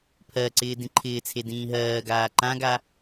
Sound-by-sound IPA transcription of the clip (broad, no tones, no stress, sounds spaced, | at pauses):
pʰ ɜ ǀ ɪː d ĩ ǃʰ ɪː t͡sʰ e d ĩː ɦ ɜː ɡ aː ǃ ã ɡ a